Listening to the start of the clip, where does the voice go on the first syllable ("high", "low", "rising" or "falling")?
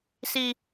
low